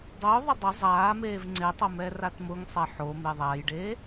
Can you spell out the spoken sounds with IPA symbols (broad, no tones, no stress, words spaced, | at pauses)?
dˤʊːðˤɐ dˤɐ zˤaː meːvŋ͡ǀetˤɐ mɛratmʊŋsˤɛ ħome ðˤajɖeː